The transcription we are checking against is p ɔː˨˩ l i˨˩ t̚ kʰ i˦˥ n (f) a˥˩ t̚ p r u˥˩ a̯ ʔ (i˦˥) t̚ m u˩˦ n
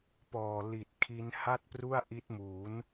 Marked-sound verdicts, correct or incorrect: incorrect: h, correct

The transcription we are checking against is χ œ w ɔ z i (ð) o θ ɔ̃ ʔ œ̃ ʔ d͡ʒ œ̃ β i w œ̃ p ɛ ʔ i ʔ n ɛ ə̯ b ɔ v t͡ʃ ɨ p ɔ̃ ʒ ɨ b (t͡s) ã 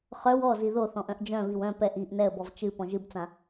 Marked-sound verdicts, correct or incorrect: correct, correct

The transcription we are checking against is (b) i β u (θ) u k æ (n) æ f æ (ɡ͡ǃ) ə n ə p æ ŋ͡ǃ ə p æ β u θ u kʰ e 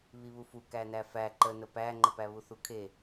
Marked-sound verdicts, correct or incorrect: incorrect: β, incorrect: f, correct, incorrect: ǃ

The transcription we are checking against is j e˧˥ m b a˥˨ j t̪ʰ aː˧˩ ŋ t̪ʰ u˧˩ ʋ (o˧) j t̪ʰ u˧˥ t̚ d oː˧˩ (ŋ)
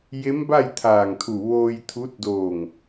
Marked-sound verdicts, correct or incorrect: incorrect: oː˧, correct

